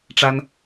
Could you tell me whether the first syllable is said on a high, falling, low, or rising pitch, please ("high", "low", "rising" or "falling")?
high